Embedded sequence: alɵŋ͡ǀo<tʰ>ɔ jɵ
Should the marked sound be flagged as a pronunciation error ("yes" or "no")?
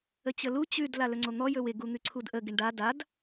yes